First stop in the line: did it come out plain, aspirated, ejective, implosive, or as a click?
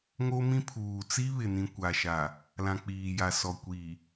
aspirated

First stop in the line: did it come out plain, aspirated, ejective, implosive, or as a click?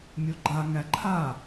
click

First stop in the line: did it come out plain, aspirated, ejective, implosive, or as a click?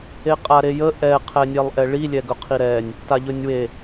ejective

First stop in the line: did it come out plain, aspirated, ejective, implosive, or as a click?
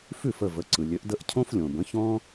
click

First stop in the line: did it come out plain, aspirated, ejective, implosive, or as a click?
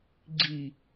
click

